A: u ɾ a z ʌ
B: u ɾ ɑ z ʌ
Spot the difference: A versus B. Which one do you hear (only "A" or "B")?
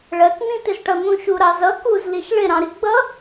B